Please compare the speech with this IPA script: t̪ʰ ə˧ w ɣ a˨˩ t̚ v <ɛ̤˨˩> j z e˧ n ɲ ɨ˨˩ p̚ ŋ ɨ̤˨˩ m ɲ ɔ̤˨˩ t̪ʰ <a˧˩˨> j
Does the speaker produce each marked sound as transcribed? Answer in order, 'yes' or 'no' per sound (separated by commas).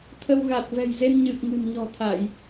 yes, yes